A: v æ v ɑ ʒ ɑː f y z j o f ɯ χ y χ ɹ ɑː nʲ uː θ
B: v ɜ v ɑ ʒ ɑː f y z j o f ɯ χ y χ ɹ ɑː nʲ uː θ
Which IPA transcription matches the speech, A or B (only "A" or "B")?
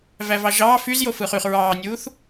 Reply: A